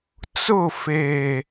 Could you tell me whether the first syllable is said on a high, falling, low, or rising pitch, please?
falling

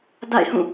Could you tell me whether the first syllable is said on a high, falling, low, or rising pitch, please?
falling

